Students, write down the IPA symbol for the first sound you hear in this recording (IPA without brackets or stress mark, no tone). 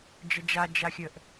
d͡ʒ